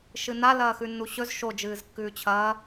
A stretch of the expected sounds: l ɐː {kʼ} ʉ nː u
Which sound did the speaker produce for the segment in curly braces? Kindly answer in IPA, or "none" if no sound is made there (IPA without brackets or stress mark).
x